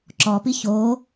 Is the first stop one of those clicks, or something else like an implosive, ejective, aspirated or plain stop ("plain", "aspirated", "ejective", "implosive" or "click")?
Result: click